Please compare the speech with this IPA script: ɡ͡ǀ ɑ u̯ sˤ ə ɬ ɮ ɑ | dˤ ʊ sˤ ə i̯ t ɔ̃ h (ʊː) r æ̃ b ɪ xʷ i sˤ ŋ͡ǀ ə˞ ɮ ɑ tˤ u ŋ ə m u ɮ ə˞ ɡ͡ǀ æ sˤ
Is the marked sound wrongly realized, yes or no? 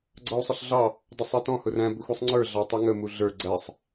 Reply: yes